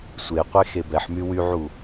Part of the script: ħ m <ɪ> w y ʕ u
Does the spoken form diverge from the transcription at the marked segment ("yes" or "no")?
yes